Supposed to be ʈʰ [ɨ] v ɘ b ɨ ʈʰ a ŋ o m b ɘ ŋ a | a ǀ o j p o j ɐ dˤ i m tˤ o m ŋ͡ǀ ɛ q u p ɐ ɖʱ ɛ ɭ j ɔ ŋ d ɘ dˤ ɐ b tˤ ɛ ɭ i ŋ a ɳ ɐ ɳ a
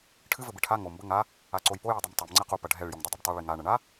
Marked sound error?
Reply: no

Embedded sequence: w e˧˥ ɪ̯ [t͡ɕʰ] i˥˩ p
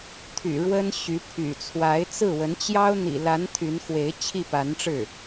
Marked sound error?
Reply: no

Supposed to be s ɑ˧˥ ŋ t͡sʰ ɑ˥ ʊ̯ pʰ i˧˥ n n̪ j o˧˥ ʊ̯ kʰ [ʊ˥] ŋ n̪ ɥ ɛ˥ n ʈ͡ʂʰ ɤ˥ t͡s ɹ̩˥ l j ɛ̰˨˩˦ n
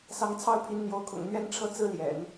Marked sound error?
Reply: yes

